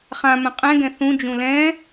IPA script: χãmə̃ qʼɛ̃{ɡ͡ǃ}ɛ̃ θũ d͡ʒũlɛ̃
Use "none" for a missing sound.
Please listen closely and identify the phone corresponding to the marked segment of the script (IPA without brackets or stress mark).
ɡ